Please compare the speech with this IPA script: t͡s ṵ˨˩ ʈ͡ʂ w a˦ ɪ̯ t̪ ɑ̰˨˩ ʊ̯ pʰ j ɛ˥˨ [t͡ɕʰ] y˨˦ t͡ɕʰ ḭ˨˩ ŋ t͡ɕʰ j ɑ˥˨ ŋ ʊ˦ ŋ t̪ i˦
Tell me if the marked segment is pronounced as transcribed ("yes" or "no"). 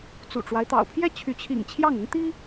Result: yes